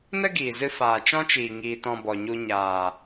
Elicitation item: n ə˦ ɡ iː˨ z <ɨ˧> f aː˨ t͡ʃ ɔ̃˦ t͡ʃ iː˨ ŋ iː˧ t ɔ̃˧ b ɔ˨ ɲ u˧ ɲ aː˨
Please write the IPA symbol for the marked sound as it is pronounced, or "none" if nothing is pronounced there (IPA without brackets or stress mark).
ɨ˧